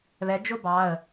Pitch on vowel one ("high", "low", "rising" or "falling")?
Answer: rising